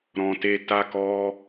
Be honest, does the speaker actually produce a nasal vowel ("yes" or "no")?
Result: yes